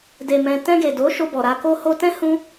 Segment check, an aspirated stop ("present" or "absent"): absent